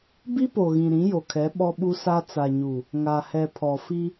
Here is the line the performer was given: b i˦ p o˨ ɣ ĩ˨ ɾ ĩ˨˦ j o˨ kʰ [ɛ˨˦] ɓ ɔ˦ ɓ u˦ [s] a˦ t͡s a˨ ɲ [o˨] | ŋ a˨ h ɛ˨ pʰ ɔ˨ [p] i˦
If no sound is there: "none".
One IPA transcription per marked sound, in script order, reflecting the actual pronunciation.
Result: ɛ˨˦, s, u˨, f

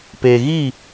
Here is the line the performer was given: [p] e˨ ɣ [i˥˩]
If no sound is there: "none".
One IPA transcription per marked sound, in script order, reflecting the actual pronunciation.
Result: p, i˥˩

